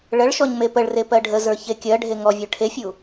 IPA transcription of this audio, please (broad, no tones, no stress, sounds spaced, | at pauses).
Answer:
ɭ ə ɭ ʃ ɔ ɲ m e p ə ɭ r e p ɜ ɖʱ ə z ə˞ ç e kʲ ɜ ɖʱ e ŋ ɔ vʲ ə˞ ʈʰ e fʲ u